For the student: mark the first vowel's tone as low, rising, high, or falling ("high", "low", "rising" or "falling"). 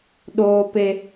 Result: high